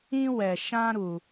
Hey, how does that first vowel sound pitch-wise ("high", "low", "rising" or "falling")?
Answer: high